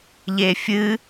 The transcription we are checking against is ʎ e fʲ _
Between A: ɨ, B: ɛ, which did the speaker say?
A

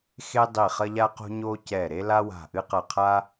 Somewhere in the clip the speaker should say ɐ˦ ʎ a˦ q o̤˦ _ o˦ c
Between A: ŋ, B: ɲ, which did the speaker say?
B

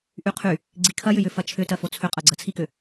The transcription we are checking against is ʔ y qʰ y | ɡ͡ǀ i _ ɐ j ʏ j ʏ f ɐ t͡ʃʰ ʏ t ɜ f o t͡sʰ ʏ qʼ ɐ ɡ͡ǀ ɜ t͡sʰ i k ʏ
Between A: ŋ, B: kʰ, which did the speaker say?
B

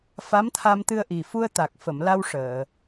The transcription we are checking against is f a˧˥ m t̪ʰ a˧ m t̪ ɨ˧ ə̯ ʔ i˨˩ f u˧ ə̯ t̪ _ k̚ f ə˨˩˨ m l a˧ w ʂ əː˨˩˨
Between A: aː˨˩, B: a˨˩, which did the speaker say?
B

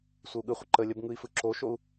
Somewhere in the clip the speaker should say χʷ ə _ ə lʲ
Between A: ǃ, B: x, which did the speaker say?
A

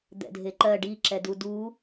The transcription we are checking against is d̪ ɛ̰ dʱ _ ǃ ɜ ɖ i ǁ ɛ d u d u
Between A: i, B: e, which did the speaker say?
B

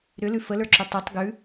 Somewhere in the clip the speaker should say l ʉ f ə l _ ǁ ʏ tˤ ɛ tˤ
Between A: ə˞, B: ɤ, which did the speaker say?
A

